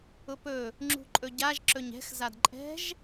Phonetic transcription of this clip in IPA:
ʊ p ɵ | ŋ͡ǁ ṳ ǃʼ ɵ ɟ a ʒ ǁ ɵ ɲ ɛ̤ x z a d ǃʼ ɛ̤ ʒ

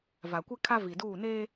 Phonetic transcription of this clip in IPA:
v a˨ kʷ ɪ˦ kʰ a˦ v i˨ d uː˦˨ n eː˦

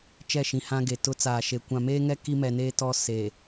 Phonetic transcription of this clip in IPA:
t͡ʃ ɛ˦˨ ʃ ĩ˨ h ã˦ ɡ e˨ t ʊ˦ t͡s aː˨ ʃ e˨ kʷ ã˨ m eː˦ ŋ ɛ˦ k i˦ m ɛ˨ n eː˦ t ɔ˦ s e˨

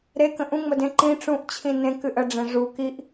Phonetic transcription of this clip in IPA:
ɾ e k ə̃ ʔ ũ ŋ͡m ə d ẽ ǃ ĩ ʈ͡ʂ ũ ʔ t͡ɕʰ ĩ n ẽ k ɨ ʔ ə ɖ͡ʐ ẽ ʐ u k i ʔ

